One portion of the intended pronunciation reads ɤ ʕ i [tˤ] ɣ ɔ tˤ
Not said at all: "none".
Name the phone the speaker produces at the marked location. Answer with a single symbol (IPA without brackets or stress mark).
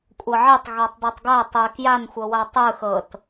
tˤ